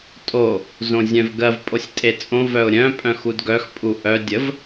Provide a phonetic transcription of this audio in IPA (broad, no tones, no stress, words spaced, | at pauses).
tʼo | zõzʲœ̃vɡɜv pʼosʲtʼet͡sʼõ vœʊ̯ɾʲœ̃ pʼœ̃xudɡœx pʼuʔœ dʲəv